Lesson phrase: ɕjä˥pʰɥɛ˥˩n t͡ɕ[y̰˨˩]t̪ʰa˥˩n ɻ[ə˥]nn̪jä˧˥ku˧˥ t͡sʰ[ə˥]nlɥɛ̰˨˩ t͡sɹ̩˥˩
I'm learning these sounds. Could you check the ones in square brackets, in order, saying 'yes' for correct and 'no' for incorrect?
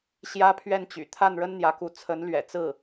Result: yes, yes, no

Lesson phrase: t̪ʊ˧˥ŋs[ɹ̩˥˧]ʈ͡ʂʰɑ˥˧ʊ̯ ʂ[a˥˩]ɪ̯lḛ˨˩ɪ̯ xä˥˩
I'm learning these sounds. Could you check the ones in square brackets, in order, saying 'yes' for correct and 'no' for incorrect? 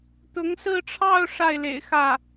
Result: yes, yes

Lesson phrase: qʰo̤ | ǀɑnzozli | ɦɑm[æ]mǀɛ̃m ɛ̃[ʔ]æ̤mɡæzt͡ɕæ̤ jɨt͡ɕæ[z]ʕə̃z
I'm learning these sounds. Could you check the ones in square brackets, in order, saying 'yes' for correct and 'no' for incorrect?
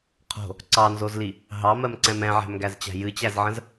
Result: no, no, yes

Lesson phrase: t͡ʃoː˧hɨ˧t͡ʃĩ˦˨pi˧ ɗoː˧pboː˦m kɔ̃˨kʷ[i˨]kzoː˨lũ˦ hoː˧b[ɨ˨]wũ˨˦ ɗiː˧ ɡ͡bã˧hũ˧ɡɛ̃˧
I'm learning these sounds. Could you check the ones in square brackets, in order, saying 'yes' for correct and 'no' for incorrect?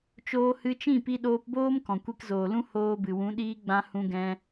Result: no, yes

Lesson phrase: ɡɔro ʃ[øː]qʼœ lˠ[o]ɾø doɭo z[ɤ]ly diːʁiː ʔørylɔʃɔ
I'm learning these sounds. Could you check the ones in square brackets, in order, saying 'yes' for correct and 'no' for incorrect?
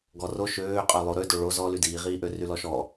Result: yes, yes, no

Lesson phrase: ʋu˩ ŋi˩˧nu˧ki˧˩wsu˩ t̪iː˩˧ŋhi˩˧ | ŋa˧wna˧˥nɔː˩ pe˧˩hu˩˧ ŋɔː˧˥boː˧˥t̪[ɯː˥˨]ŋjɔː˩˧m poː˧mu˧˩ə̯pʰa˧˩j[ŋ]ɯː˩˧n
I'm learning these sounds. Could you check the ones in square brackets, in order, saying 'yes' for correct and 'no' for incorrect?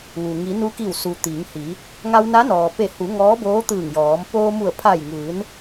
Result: no, yes

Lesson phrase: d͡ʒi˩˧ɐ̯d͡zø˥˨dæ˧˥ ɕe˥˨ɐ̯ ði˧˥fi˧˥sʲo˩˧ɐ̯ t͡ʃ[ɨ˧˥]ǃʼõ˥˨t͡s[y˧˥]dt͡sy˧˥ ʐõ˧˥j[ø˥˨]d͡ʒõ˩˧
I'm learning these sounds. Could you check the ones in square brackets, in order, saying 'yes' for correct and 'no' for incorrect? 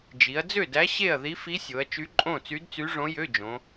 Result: no, yes, no

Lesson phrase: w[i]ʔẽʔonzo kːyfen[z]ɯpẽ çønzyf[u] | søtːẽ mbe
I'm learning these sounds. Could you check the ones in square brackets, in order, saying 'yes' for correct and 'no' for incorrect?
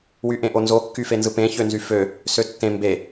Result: no, yes, no

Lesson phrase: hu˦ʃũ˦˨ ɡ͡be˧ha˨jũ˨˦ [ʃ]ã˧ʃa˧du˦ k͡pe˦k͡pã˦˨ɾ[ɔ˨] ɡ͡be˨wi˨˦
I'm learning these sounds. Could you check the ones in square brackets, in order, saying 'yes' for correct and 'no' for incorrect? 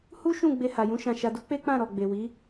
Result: yes, yes

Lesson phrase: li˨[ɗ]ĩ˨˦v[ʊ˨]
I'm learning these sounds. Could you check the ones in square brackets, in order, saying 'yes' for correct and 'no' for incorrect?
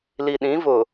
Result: yes, yes

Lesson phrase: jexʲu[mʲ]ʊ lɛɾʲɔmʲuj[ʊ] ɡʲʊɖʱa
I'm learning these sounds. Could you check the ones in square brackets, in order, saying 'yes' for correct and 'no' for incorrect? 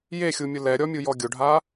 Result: yes, no

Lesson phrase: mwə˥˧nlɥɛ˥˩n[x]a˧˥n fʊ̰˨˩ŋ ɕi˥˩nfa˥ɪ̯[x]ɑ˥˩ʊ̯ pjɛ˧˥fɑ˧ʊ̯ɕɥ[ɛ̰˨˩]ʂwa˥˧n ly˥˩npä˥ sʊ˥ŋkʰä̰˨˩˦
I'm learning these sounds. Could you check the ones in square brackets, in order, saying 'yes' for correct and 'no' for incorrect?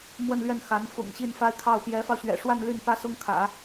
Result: yes, no, yes

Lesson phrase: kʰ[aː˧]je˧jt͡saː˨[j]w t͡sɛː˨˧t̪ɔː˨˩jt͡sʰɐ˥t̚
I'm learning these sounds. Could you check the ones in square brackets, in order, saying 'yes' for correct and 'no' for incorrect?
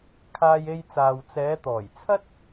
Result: yes, no

